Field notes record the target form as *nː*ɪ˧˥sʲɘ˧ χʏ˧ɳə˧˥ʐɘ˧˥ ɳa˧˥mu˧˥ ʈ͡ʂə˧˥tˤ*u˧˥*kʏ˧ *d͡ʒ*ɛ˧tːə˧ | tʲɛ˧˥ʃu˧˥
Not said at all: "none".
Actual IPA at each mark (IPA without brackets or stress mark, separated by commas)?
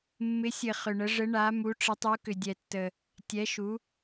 mː, u˧˥, dʲ